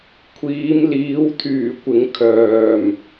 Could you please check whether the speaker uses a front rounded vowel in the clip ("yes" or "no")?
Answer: yes